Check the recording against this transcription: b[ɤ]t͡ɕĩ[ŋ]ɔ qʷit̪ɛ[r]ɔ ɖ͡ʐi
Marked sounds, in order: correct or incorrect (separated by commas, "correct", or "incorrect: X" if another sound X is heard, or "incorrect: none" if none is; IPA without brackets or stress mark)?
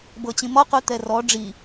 correct, incorrect: m, correct